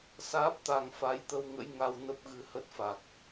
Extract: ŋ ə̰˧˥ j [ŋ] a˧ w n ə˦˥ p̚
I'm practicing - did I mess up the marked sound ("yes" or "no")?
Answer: no